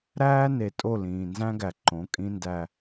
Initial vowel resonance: oral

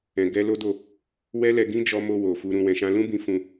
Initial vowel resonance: nasal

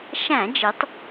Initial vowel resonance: nasal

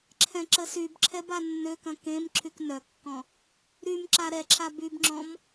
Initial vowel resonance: nasal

